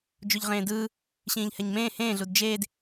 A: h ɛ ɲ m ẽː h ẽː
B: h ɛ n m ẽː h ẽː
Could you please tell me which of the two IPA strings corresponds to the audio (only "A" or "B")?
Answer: A